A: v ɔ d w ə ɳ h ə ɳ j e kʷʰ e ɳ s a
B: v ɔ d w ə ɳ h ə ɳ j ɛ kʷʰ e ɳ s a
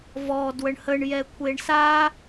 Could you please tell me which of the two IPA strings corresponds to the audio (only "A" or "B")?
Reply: B